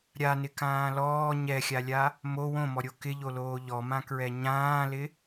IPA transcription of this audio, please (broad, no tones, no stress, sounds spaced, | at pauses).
ɾʲ a n ɪ k ãː l ɔː ɲ ɛ xʲ a lʲ a | m o w õ m ɔ ɾʲ o k ɪ ʎ o l oː ʎ ɔ m ã k ɹ ɛ ɲ ãː l ɪ